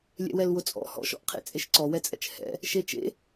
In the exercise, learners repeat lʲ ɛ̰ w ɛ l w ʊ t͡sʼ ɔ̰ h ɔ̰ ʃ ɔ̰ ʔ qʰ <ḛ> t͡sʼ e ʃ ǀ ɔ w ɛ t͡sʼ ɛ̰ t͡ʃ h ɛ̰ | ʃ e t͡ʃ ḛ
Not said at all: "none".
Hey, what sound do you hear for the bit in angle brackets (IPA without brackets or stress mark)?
ḛ